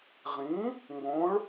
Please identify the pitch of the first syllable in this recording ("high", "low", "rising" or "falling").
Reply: rising